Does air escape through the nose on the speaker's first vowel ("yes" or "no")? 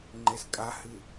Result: no